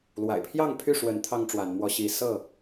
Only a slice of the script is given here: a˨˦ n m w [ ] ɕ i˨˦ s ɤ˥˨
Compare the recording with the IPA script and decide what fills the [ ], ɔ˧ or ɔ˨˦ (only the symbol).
ɔ˧